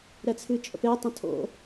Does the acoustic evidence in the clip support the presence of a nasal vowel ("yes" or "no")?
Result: yes